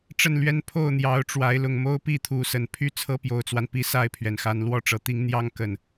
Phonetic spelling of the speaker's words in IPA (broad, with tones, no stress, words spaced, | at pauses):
ʈ͡ʂə˥˨nlɥɛ˦n pʰo˥˨ʊ̯n̪jɑ˨˦ʊ̯ʈ͡ʂwa˨˦ɪ̯ lʊ˨˩ŋmo˦ʊ̯pi˥˨t̪ʰu˨˦ sə˨˩npʰy˦ t͡sʰɤ˦pjo˨˩ʊ̯t͡swa˦npi˨˦ sa˥˨ɪ̯pʰɥɛ˩nxa˨˦n lwɔ˥˨ʈ͡ʂɤ˨˩t̪i˦ŋ n̪jɑ˦ŋkə˨˩n